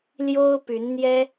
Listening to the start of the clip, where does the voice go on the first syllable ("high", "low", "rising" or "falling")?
high